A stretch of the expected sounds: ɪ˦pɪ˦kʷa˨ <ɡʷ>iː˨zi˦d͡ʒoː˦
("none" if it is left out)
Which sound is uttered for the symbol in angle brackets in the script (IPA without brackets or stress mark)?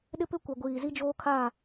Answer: ɡʷ